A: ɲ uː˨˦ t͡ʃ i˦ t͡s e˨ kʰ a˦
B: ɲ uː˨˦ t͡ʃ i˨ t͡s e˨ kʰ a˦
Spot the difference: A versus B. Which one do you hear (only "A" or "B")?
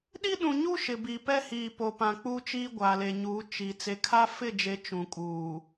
B